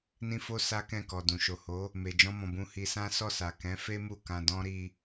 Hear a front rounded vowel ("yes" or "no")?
no